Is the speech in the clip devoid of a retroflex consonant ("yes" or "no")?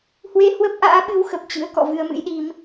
yes